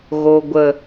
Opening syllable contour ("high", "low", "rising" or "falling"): low